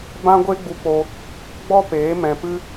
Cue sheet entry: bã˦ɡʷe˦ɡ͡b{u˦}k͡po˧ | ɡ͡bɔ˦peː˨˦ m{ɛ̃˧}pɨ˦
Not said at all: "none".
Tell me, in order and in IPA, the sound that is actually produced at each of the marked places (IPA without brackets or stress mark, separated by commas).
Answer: u˧, ɛ̃˧